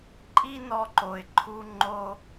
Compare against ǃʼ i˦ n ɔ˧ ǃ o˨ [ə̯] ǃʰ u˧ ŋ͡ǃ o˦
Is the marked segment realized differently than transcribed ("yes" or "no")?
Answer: yes